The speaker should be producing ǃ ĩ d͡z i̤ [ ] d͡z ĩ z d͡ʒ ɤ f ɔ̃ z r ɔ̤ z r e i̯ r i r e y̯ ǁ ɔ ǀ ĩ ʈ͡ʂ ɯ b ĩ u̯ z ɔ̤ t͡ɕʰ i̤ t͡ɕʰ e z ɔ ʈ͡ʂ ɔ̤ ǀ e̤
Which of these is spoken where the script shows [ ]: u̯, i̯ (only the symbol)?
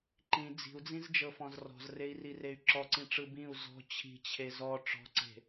u̯